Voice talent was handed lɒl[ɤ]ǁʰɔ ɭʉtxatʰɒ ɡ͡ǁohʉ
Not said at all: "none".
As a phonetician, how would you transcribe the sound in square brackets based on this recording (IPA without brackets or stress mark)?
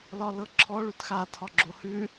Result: ɤ